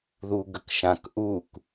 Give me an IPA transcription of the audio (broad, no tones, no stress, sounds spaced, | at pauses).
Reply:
ð u ɡ ə k ʃ ã k ʔ u k